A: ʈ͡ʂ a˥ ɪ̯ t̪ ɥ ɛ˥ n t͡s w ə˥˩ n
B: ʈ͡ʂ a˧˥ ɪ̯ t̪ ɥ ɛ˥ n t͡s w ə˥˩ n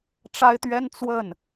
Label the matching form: A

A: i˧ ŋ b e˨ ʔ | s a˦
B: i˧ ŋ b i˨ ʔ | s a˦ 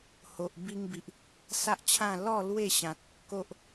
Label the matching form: B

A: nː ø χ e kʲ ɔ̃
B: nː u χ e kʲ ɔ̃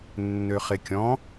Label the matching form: A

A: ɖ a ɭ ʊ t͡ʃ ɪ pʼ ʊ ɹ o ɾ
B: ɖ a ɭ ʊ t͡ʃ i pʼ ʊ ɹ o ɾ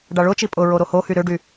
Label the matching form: B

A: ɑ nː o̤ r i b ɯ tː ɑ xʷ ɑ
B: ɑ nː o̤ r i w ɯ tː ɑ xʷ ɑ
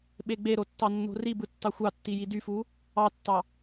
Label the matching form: A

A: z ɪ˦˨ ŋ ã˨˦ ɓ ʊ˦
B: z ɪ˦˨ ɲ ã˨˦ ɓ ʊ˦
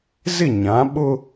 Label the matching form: B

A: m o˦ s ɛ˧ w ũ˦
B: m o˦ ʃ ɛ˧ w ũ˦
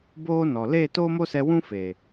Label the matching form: A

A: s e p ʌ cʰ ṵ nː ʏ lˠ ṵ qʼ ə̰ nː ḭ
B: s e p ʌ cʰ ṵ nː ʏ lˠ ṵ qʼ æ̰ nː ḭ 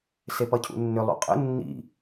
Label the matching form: A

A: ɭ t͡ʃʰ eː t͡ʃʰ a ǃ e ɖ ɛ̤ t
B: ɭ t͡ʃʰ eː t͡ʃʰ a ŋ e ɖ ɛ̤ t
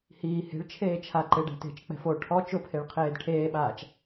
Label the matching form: A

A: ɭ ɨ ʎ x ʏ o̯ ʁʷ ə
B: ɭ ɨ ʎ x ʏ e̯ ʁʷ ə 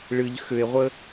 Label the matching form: B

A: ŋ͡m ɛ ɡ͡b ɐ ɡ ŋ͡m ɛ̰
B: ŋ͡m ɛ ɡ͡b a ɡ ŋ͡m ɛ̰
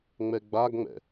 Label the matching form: B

